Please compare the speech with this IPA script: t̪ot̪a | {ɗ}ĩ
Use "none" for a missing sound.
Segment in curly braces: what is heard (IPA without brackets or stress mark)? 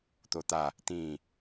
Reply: t̪